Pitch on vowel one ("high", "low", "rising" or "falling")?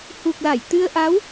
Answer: low